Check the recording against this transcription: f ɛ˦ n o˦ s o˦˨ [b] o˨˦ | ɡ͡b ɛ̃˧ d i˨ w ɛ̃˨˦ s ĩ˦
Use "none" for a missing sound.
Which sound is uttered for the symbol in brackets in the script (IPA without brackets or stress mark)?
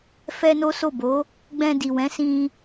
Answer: b